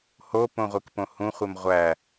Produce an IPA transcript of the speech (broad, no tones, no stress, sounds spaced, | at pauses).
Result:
h o p õ ʁʷ i k p õ h ũ χʷ e m ʁʷ æ